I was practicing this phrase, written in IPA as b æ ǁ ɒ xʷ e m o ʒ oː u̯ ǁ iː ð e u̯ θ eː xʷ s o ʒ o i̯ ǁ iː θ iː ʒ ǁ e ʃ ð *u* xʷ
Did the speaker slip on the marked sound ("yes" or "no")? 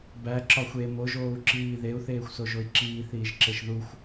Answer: no